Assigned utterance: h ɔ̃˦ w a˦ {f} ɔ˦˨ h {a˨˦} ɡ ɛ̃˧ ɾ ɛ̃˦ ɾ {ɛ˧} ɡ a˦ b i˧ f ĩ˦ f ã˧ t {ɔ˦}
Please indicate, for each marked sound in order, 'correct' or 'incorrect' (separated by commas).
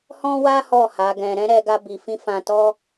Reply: incorrect, correct, correct, correct